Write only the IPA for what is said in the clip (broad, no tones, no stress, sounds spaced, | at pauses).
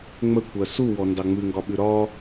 ŋ͡m ə kʷʰ ɜ s u w ɔ n d ɑ ŋ͡m ʉ ŋ ɡ ɒ ɓ ʉ ɾ ɒ